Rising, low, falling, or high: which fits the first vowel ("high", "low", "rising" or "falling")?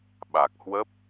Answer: low